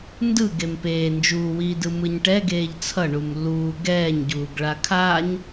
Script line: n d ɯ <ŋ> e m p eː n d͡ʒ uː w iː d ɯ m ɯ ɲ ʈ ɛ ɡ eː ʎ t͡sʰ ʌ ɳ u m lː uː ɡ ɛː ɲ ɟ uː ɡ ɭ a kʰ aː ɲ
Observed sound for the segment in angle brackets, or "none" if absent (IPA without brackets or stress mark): ɡ